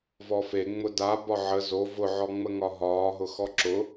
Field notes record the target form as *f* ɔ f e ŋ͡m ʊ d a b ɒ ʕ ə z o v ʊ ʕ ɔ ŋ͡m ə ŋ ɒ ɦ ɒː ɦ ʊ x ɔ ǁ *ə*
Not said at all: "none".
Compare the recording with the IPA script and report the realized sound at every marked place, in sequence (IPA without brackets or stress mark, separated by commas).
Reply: v, ʊ